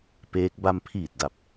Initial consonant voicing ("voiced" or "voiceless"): voiceless